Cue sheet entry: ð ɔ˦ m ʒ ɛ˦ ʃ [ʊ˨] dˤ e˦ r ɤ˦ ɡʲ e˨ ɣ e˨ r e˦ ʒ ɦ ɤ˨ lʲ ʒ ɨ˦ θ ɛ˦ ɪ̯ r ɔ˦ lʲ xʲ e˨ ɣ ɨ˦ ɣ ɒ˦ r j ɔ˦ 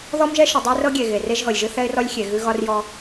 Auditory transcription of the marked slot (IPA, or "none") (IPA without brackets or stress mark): ʊ˨